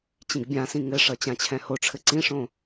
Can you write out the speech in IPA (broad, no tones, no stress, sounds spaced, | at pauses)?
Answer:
t͡ɕ ĩ ɡ bʲ ã s ĩ ŋ ɘ ʂ ʌ t͡ɕ ã t͡ɕʰ ɛ̃ h o ʈ͡ʂʰ ɘ ǀ ĩ ʂ õ